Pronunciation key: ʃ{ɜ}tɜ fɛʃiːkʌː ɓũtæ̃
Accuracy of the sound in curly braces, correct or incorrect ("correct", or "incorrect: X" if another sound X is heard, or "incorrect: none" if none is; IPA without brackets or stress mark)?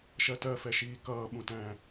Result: correct